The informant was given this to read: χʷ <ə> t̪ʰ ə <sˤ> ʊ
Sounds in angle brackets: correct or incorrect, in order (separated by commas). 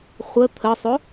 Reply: correct, correct